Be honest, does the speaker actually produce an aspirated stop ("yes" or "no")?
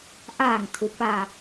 yes